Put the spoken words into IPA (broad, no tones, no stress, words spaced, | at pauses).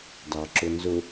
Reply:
dɑǁʊnzʊ